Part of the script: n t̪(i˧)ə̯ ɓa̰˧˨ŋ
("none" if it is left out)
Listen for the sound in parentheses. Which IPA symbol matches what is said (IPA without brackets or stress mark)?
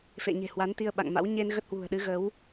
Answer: i˧